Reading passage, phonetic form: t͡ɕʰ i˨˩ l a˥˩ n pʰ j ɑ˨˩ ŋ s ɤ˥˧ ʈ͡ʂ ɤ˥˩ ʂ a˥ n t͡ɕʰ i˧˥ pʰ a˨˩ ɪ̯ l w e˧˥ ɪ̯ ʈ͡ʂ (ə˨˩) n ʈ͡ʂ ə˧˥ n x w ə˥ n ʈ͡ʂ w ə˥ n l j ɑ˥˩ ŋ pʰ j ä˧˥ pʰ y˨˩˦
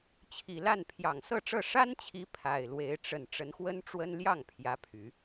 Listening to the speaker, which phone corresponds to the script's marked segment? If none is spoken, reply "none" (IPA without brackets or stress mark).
ə˨˩